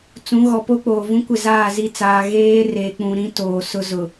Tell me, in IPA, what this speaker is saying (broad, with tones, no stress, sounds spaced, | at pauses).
t͡s ũ˨˦ ɣ ɔ˨ p o˦ k͡p oː˨ v ũ˦ kʷ ɪ˦˨ z aː˦˨ z i˦˨ t͡s aː˨ ɣ eː˦ r e˨ k͡p ũ˨ ɾ ĩ˦ t oː˨ s ʊ˦ z ʊ˨